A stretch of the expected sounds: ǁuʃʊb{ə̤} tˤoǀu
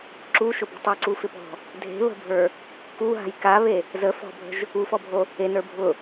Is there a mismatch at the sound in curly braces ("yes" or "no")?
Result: no